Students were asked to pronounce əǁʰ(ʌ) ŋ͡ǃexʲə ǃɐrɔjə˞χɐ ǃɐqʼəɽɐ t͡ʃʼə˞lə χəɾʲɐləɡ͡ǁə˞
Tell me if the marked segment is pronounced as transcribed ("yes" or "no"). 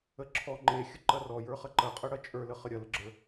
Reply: no